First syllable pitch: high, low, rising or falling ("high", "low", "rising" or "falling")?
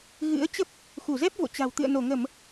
rising